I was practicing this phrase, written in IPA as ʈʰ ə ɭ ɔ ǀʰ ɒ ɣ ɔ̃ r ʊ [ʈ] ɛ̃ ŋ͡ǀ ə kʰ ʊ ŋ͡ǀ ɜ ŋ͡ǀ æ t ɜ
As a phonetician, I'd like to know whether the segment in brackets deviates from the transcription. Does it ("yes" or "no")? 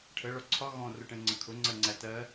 no